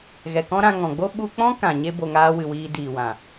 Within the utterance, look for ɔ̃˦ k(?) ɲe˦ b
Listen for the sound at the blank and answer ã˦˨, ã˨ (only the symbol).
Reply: ã˨